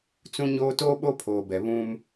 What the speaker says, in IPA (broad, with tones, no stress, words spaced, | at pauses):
t͡sũ˦ɲoː˦ toː˦ɓo˦pʰoː˨bɛ˨ βũ˦m